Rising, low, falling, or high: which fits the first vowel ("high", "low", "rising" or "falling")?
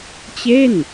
falling